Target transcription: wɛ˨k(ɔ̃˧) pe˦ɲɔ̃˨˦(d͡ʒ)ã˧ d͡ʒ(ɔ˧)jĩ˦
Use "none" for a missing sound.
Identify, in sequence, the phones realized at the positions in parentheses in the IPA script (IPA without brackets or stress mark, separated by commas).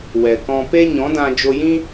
ɔ̃˧, d, o˧